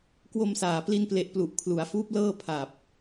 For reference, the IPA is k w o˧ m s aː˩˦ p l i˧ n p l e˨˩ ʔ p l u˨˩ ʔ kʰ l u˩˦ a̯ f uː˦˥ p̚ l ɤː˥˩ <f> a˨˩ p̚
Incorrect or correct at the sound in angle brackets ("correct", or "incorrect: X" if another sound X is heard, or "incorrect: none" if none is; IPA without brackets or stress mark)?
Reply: incorrect: pʰ